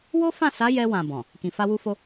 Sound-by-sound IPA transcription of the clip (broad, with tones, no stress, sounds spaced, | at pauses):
w o˦ f ã˦˨ s a˨˦ j ɛ˧ w ã˨ b ɔ̃˨ | k ĩ˨ f a˧ w u˧ f o˧